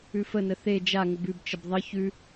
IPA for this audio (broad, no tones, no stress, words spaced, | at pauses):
ʉfənə θe d͡ʒaŋəb ʉbt͡ʃəb ðˤə çʉ